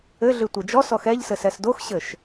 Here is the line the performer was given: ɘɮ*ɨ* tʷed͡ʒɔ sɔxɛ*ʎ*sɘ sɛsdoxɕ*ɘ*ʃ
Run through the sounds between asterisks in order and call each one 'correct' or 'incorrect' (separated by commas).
correct, correct, correct